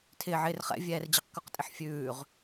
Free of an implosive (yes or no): yes